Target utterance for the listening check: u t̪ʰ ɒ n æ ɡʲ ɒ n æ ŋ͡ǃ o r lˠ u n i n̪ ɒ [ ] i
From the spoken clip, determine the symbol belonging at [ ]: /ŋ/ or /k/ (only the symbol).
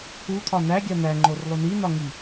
ŋ